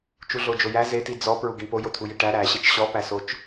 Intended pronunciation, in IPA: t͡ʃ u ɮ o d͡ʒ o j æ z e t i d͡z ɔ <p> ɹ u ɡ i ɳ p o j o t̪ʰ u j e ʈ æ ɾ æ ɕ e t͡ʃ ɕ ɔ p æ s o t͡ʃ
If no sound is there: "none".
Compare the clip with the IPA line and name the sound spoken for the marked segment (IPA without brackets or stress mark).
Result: p